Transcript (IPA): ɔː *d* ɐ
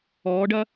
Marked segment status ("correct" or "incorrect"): incorrect